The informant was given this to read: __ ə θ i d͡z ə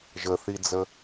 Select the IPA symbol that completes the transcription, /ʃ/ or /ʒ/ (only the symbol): ʒ